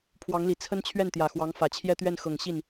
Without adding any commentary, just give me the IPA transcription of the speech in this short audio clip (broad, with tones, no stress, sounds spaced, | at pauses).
pʰ w ɑ˧˥ ŋ l i˨˩ t͡sʰ ə˥ n t͡ɕʰ ɥ ɛ˥˩ n t̪ j ä˨˩ x w ɑ˧˥ ŋ f ä˨˩ t͡ɕʰ j ɛ˥˧ t̪ ɥ ɛ˥˩ n x ɤ˨˩ ŋ ɕ i˥˩ n